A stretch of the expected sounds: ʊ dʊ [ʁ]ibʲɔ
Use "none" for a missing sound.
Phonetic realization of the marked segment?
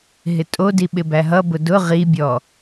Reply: ʁ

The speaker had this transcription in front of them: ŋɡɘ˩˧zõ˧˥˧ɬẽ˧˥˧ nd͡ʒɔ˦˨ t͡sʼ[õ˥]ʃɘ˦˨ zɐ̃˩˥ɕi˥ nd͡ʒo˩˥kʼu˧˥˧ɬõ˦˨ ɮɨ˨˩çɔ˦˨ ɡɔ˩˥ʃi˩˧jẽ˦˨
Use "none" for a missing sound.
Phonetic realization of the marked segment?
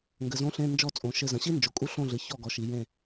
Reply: õ˩˧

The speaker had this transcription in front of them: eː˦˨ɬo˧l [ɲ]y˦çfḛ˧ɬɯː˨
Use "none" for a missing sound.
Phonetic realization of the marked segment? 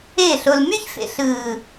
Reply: m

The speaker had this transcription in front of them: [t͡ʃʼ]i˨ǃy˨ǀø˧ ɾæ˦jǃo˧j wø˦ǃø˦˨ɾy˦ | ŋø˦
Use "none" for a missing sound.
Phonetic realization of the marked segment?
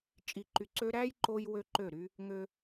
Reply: t͡ʃʼ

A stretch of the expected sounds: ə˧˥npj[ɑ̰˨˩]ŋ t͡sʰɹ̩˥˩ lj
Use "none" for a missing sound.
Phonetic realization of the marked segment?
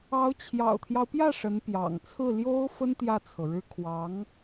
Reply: ɑ̰˨˩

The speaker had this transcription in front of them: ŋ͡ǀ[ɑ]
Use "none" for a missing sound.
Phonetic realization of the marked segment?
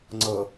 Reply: ʌ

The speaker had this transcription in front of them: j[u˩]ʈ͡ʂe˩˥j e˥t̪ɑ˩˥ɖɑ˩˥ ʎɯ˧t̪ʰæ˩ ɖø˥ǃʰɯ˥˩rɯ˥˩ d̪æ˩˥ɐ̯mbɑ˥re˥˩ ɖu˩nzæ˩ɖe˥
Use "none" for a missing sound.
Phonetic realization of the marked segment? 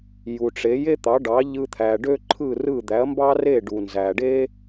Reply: u˩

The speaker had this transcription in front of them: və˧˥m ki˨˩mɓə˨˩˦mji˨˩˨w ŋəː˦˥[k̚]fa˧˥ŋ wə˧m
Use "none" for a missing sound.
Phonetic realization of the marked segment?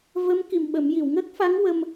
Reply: k̚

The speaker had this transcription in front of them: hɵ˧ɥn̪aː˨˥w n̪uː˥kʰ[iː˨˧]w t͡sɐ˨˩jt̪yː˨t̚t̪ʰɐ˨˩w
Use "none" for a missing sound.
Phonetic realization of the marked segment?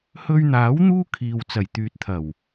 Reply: iː˨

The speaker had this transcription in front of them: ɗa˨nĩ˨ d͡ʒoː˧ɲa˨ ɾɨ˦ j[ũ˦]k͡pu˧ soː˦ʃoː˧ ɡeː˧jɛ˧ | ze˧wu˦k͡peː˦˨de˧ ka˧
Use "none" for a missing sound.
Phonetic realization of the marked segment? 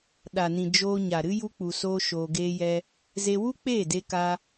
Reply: u˦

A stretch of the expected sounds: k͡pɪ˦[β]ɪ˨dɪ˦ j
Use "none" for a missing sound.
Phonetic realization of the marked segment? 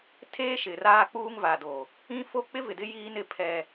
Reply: v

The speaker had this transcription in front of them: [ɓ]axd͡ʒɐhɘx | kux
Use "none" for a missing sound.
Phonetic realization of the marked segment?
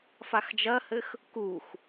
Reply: f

